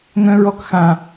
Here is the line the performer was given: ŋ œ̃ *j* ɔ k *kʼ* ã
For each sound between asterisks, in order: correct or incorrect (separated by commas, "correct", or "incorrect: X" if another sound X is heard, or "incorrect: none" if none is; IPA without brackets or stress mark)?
incorrect: ɹ, incorrect: x